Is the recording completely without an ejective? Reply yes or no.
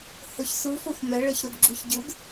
yes